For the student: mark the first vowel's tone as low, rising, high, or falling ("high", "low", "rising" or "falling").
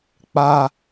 high